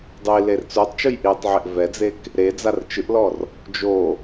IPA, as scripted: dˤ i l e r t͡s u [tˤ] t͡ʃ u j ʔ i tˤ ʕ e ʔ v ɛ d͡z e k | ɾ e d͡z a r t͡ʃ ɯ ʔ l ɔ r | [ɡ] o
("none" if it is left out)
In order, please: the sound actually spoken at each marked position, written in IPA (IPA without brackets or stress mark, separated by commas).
tˤ, d͡ʒ